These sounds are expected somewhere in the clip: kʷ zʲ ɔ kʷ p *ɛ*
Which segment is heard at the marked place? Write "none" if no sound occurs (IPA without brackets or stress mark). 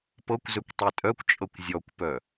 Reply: œ